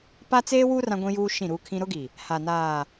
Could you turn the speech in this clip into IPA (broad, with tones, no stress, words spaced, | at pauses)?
pa˦t͡seː˦wu˦ rã˦ɡʷĩ˦juː˦ ʃĩ˦˨ɾuː˦kʰĩ˦ ɾʊ˦ɡi˨ | ha˨naː˨